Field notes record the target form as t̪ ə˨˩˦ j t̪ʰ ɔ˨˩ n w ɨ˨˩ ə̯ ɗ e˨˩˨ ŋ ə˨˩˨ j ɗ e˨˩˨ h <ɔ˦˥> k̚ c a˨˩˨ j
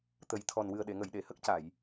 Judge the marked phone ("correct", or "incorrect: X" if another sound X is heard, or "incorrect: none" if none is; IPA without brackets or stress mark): incorrect: ə˦˥